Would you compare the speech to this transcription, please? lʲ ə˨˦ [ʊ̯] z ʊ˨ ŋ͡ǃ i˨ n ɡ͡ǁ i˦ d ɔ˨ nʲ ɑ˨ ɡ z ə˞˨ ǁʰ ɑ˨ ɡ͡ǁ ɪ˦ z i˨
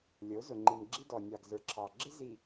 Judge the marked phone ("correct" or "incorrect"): correct